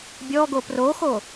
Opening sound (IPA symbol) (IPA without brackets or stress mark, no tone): bʲ